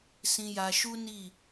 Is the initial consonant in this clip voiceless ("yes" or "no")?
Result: yes